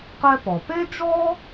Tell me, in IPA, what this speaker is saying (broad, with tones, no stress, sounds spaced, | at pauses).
q ɛ˥ p ɔ˩ p e˥ d͡ʒ ɔ˥